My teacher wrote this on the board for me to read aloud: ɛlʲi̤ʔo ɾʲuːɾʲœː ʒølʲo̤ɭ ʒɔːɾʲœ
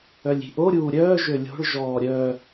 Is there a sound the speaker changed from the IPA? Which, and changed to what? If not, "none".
ɛ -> œ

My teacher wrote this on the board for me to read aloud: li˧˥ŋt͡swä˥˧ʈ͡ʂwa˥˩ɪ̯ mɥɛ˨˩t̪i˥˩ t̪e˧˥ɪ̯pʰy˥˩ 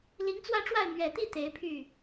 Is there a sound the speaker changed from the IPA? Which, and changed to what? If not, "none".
none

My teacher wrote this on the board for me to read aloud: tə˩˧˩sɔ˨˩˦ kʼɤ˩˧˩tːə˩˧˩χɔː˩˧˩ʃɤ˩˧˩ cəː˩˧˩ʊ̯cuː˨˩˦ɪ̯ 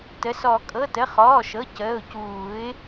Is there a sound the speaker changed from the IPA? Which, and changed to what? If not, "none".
tː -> t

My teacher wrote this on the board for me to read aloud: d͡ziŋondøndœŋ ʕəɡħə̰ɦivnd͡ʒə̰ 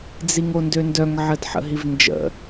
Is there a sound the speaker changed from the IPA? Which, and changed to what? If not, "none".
ɡ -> d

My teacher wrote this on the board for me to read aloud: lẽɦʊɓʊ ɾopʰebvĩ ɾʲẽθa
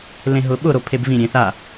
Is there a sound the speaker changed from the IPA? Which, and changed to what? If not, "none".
none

